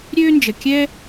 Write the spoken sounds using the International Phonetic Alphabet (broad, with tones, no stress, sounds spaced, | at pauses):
ɾʲ øː˥ n d͡ʒ ə˩ kʲ ɛ˥